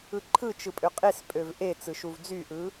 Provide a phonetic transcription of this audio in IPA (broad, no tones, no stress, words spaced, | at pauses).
ɯǃʰɯt͡ʃɯpʼø qʼespʼøv ʔe t͡sɯʃuvd͡zyʔɯ